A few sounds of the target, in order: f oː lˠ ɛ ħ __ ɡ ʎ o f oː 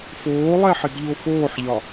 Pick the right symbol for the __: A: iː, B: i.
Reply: B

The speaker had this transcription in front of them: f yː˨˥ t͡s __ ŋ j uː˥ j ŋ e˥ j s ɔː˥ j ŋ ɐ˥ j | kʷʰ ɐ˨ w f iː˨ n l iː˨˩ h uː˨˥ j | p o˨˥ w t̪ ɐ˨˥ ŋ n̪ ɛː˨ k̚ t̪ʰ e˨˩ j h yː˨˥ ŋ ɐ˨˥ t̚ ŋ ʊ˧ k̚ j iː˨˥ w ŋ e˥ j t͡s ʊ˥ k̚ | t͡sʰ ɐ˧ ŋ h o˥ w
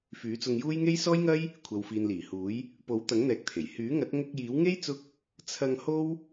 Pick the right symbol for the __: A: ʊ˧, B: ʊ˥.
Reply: A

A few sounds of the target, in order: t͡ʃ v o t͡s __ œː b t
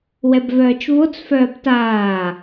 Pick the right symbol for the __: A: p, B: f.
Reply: B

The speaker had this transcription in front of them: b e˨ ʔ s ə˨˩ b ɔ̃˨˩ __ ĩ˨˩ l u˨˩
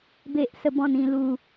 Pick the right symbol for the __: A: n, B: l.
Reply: A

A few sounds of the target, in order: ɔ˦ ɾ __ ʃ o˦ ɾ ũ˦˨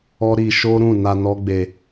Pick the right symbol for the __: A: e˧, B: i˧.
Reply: B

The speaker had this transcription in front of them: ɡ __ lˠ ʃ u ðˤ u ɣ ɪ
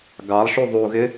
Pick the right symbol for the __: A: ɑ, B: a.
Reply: A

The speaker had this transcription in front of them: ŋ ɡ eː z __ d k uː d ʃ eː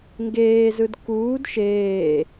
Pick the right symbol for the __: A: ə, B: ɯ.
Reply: B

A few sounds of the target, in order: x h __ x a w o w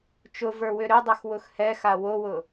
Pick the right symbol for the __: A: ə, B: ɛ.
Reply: B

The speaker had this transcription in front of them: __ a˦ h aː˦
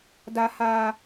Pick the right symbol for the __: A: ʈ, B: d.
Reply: B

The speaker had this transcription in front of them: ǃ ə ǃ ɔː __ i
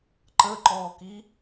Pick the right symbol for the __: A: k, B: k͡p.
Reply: A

